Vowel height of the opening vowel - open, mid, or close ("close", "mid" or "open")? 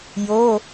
mid